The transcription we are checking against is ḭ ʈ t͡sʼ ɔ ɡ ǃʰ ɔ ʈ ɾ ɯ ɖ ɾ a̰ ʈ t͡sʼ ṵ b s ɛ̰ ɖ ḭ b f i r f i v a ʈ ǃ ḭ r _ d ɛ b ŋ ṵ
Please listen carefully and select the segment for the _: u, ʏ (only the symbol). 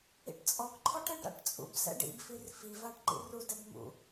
u